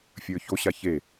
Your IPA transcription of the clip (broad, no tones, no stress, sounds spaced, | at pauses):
fʲ ə˞ ç o ɕ a ç e